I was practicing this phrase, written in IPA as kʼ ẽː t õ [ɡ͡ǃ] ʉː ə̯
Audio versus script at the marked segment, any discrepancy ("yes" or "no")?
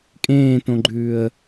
no